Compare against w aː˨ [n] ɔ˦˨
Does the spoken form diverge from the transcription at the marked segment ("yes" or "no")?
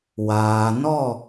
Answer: no